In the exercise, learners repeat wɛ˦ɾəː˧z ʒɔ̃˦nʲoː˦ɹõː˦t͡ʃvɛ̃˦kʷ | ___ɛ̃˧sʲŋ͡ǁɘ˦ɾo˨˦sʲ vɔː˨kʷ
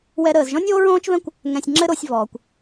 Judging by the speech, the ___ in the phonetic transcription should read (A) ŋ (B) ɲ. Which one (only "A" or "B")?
A